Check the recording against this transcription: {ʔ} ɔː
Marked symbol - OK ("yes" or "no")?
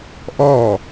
yes